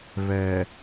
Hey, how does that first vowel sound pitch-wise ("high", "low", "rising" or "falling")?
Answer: low